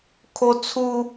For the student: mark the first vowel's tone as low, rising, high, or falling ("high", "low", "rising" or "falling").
high